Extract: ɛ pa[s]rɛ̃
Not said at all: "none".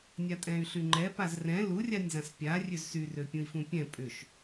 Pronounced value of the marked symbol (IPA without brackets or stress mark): z